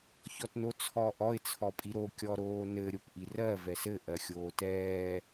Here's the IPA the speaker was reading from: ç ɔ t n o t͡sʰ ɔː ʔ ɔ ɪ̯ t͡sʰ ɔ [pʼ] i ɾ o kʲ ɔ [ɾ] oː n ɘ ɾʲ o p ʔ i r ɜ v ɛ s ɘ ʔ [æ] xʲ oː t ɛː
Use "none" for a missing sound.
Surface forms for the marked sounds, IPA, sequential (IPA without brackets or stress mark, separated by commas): pʼ, ɾ, ɜ